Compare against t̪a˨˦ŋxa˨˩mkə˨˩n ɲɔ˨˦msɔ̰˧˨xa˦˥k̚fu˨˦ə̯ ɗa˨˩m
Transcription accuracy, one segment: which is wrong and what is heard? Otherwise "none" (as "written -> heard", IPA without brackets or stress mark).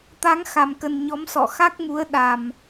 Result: f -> m